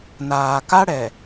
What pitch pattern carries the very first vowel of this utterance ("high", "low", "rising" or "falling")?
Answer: low